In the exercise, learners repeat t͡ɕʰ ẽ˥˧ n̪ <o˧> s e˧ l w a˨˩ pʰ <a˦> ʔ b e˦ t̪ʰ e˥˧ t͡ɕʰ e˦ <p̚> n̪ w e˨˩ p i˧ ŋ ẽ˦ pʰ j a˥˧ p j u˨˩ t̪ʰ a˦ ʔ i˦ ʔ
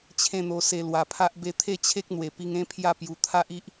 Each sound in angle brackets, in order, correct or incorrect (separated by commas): correct, correct, incorrect